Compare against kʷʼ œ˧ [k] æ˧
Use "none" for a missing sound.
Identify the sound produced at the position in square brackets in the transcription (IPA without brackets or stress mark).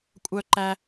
ǃ